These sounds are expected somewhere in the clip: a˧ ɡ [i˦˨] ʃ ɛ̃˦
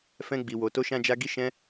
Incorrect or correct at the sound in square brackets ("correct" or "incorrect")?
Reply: incorrect